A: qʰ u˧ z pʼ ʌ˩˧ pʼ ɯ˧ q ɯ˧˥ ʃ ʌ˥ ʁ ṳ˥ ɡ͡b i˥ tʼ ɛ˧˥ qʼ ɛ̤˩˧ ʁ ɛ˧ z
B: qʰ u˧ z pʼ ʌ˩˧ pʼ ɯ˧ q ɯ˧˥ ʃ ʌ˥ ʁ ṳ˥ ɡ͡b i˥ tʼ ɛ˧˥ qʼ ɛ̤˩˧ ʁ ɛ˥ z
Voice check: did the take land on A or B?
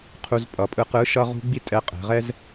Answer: B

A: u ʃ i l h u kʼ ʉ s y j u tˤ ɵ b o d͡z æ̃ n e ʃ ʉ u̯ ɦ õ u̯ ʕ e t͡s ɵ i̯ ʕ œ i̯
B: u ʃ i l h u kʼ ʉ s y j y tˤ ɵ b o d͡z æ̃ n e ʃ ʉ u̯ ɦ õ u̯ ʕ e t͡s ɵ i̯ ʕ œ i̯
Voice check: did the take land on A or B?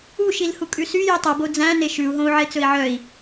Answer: A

